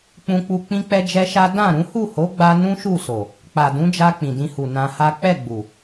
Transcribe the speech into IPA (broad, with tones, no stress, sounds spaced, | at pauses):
k͡p ũ˧ k͡p u˧ k͡p ĩ˦ k͡p ɛ˦ d͡ʒ ɛ˦ ʃ a˦ d ã˦˨ ɾ ũ˨˦ h u˦˨ h o˨˦ ɡ͡b a˧ n ũ˦ ʃ u˦˨ s o˨ | k͡p a˨ d ũ˨˦ d͡ʒ a˧ k͡p ĩ˨ d ĩ˧ h u˨ n ã˧ h a˦ k͡p ɛ˦˨ ɡ͡b u˨